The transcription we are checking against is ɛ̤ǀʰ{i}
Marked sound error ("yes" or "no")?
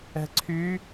yes